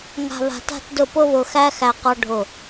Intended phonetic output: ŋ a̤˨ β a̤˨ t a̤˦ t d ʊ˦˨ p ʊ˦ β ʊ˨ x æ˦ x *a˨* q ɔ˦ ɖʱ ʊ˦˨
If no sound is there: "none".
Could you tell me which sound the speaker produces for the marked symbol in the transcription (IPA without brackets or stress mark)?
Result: æ˨